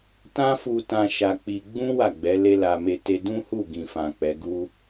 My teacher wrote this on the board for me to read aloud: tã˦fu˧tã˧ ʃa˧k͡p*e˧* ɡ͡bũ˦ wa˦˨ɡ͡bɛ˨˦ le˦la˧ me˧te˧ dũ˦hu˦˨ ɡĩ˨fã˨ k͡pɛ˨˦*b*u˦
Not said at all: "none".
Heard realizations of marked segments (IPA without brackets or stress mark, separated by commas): i˧, ɡ